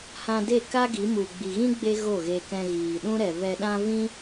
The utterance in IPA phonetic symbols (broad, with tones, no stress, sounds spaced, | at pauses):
h ã˧ d e˦˨ k a˦ ɡ i˨˦ m u˨ ɡ͡b i˨ ɣ ĩ˦ ɡ͡b e˦ ɣ o˦˨ ɣ e˧ k ɛ̃˧ ɣ iː˨ ɗ ũ˦ ɾ ɛ˨ v ɛ˨ ɗ ã˧ v ĩ˦